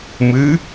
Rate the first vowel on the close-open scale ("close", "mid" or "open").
close